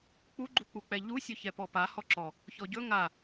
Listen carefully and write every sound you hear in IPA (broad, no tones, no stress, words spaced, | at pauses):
k͡puɡ͡ǃuk͡puk͡pɛ ʎusʲɵ çɛpɔpa hɔǁɔ | çɔɟɵ ŋa